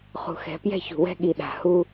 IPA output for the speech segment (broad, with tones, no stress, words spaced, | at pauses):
χṳ˨xɛ̤˨pjɛ̤˦˨ çṳ˨wɛ̤˦ɠi˨ ɗa̤˨hu˦